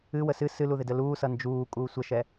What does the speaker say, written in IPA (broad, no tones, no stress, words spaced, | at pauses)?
ɨ wəsɨ sɨluðɪdə luːsʌ nd͡ʒuː kʼuːsʷəʃɛ